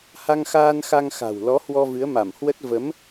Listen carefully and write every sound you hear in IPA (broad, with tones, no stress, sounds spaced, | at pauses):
h a˧ ŋ x aː˧ n x a˧ ŋ x a̤˨˩ w l ɔ˨˦ h w ɔ˧ v ɨ˨˦ ə̯ m a˧˩ m h w ə˦˥ t̚ v ə˨˦ m